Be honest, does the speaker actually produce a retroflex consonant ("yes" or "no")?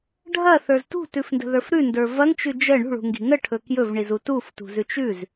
yes